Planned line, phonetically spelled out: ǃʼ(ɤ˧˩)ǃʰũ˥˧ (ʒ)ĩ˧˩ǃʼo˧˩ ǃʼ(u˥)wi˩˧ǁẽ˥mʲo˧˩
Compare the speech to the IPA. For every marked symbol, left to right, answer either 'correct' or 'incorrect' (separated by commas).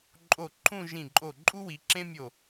incorrect, correct, correct